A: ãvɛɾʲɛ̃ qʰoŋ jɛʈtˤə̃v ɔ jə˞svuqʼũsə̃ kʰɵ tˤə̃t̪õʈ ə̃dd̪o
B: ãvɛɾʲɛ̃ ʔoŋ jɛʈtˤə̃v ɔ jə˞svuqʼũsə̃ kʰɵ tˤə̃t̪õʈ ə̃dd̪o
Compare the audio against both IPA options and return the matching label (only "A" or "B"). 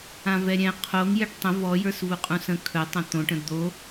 A